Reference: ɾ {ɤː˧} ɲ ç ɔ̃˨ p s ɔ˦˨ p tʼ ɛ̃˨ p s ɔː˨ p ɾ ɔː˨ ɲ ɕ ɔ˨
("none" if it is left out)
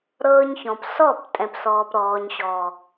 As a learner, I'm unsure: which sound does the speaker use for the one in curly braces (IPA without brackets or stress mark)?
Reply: ɤː˧